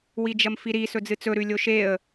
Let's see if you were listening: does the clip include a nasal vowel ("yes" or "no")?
no